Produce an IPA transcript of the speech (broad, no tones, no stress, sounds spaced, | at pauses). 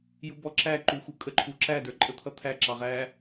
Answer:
j u b ɔ ǁ æ ǃ u x u kʼ ə ǃʰ u ǁ æ d ə˞ ǃʼ ə t̪ʰ ʌ t̪ʰ æ ǁ ɑ ʁ æ